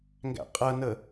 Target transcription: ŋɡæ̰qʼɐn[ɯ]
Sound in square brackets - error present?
yes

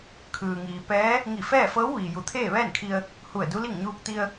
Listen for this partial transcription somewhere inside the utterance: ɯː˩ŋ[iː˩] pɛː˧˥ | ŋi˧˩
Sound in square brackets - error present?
no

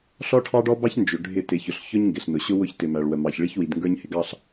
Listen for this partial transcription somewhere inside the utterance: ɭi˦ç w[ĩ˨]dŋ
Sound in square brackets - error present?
yes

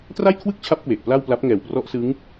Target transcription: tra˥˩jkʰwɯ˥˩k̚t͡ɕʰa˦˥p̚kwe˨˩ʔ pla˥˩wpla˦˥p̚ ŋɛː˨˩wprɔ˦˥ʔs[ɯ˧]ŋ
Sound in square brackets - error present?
yes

